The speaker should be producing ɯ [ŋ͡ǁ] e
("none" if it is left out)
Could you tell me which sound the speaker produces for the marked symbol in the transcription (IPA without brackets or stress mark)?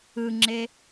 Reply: ŋ͡ǁ